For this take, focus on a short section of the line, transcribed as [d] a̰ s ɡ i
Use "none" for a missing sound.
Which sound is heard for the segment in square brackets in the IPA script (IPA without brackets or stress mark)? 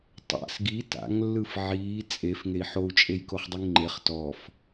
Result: tˤ